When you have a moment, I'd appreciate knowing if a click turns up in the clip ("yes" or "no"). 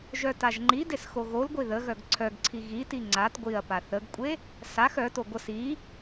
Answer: yes